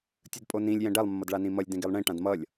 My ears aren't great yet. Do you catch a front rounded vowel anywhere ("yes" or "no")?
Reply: no